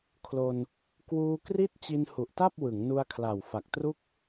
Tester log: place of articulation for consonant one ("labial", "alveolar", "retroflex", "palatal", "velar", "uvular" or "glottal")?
velar